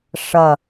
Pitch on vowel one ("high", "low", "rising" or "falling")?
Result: falling